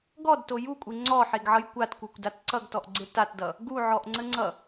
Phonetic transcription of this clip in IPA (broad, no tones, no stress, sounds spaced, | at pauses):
ɡ ɔ d t o j u kʷʼ e ŋ͡ǀ ɔ ħ e ɡ ʕ ʌ j kʷ a t kʷ e kʷ d a t ǀ ʌ ɡ t ɔ ʔ ɡ͡ǀ e t a t d ʌ | ɡ u ʕ ɔ ʔ ŋ͡ǀ ə ŋ͡ǀ ʌ